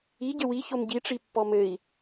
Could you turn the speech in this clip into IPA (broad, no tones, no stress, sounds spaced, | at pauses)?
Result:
i ɟ ɘ w i ç o m ɟ i ʈ͡ʂ i pː ɔ m ɘ i̯